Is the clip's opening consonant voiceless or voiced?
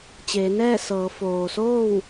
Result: voiceless